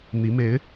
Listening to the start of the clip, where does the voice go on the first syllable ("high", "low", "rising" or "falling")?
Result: rising